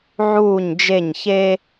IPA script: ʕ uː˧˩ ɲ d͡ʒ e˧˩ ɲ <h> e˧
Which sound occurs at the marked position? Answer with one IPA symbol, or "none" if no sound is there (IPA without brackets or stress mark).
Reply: ç